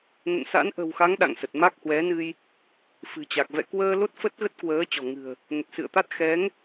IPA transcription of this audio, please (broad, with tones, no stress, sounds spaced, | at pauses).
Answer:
n ə̰˧˨ n s a̰˧˥ n ʔ ə̤˨˩ w x a˨˦ ŋ ɗ a̰˧˨ ŋ s ə˨˩ t̚ m a˦˥ k̚ h w ɛ˨˦ n ɨ˧ j | f ɨ̤˨˩ t͡ɕ a˨˩ k̚ v ɛ̰˧˨ k w əː˧ l o˦˥ t̚ f ə˦˥ t̚ ɣ ə˦˥ t̚ k w əː˨˦ t͡ɕ ɔ̤˨˩ ŋ ɨ̤˨˩ ə̯ | n ə˨˩ t̚ s ɨ̰˧˨ ə̯ t̪ a˦˥ t̚ x ɛ˨˦ ŋ